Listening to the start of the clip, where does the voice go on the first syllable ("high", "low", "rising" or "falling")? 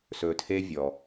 low